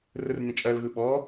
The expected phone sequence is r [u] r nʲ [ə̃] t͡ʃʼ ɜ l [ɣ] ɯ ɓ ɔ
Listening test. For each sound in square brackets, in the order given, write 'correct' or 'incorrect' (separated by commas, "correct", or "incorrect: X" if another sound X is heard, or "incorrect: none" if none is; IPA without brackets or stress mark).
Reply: incorrect: ɯ, correct, correct